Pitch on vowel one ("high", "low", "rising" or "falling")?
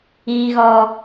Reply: low